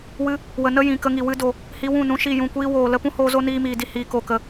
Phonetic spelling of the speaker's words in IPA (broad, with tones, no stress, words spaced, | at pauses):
wɨ˧ | wə˧nə˦ jĩ˨kə˧ŋi˨ wɨ˧do˨ | hi˧ wũ˦˨nũ˧ ʃi˦˨jũ˦˨kʷiː˦ woː˨lə˧pũ˦hoː˧ zo˦niː˧miː˨di˧ hiː˨ko˨kə˨